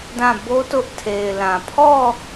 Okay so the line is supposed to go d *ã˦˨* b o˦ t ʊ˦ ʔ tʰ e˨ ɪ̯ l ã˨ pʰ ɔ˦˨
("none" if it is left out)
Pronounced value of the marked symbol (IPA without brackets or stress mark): ã˦˨